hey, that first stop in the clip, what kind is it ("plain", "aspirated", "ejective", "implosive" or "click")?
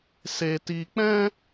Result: plain